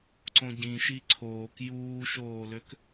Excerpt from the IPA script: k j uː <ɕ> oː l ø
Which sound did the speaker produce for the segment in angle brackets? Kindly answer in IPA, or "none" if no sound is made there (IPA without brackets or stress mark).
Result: ʃ